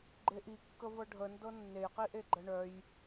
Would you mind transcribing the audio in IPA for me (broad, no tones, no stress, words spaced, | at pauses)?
ɡ͡ǃeʔi kːəvɤɖʱə ndɤnːej qiʔeɡ͡ǃəɳœj